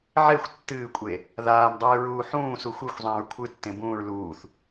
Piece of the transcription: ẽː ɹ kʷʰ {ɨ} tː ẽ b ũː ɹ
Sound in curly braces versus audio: correct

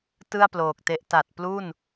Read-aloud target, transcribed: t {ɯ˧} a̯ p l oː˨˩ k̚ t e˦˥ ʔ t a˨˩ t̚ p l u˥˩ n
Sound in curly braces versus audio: incorrect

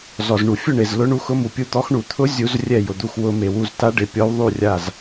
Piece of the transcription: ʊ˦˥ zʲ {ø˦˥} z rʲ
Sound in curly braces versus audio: incorrect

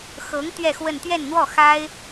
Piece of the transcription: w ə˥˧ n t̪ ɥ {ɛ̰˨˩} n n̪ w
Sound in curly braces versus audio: incorrect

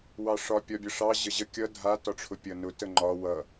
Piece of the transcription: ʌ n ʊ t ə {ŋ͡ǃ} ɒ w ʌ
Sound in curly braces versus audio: correct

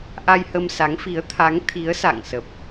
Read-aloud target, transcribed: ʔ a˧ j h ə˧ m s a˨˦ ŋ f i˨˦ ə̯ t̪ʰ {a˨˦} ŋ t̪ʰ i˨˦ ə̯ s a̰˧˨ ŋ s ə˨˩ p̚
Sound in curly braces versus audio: correct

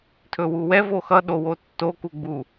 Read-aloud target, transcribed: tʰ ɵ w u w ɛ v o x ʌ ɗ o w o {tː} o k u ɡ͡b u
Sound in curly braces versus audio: correct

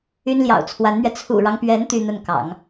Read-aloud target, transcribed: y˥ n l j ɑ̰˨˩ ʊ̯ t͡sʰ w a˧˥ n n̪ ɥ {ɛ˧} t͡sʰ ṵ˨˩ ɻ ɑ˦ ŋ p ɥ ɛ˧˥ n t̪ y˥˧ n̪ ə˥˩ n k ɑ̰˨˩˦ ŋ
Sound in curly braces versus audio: correct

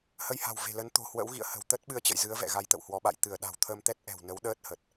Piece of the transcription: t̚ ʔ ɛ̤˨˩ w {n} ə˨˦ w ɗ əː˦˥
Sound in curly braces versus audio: correct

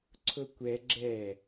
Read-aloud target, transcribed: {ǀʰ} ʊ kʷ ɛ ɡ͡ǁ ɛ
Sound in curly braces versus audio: correct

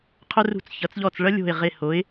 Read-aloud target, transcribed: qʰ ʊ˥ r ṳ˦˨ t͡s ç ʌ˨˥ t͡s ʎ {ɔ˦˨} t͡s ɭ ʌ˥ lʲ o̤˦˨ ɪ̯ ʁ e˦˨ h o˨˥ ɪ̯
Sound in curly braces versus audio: correct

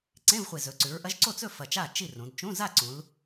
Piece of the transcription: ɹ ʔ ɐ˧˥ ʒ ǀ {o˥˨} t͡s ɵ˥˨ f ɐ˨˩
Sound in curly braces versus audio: correct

